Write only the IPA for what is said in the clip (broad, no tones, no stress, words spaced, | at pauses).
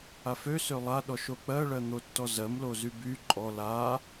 afø sølˠa ɗɔʃok͡pɜ ɭɜn̪otːɔzɜm lozyby ǃʼɔ la